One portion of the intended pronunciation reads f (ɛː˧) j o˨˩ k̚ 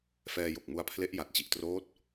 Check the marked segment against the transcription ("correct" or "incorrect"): correct